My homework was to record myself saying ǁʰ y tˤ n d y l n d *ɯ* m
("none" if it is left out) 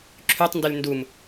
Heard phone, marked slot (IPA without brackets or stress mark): u